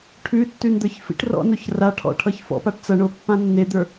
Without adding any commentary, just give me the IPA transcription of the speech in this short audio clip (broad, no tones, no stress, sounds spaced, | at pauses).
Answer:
ʈʰ ʉ tː ʉ n d̪ ə˞ ç f ḭ ʈ r ɔ̰ n o ç r a ʈʰ ɔ̰ ʈʰ ʌ ç f ɔ̰ p a ʈ t͡s ʌ ɳ o pː ã nː e d̪ ə˞